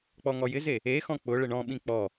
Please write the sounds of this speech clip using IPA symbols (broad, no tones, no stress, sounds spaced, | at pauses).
k͡p ɔ ŋ ɔ j ɪ z e | e x ɔ̃ k͡p ʊ ɭ ɪ ɳ ɔ̃ ɓ ĩ k͡p ɔ